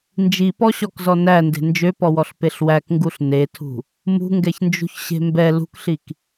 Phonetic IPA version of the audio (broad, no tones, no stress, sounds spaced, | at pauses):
n d͡ʒ i p ɔ ɕ ɔ k z ɔ n æ n d e̤ n d͡ʒ ø p ɔ w ɔ ɬ p e ɬ w æ k ŋ ɡ u ɬ n e tʰ ṳ | m ṳ ŋ ɡ ɛ ç n d͡ʒ ṳ ç ɕ e̤ m b ɛ l ṳ k ɬ i k